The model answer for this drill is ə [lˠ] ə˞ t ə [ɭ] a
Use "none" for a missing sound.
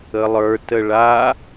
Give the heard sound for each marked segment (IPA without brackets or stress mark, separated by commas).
lˠ, ɭ